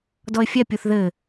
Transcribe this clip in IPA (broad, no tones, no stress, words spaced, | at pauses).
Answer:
dɔɪ̯fʲɛpʲuθ ðɘ